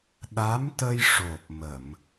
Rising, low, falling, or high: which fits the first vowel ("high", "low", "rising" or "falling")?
rising